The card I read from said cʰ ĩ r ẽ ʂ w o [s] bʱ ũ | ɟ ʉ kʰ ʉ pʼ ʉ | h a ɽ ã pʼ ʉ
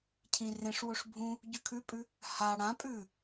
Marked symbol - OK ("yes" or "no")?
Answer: no